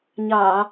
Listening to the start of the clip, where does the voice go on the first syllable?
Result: low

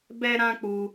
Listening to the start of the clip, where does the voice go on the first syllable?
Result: high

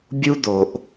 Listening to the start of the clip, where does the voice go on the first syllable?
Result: high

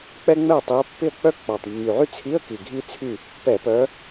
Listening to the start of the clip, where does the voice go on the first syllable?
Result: high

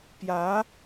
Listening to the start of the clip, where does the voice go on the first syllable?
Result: rising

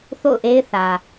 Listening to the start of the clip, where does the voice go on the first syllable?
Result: falling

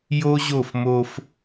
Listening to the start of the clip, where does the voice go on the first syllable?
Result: high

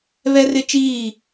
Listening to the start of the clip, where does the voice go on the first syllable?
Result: high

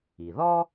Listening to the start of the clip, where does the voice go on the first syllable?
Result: low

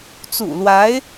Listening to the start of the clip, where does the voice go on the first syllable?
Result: low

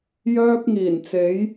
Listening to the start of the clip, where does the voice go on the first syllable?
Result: high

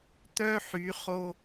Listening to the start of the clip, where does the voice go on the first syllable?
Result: high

